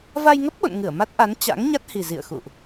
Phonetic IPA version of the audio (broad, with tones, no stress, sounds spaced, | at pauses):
v a˧ j ŋ ə˦˥ p̚ ɓ o̰˧˨ n ŋ ɨ˧˩ ə̯ m a˦˥ t̚ ʔ a˨˦ n t͡ɕ a̰˧˥ ŋ ɲ a˦˥ t̚ h i˨˩ z ḭ˧˨ ə̯ x ṵ˧˨ ʔ